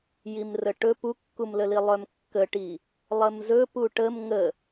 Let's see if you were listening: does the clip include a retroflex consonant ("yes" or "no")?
yes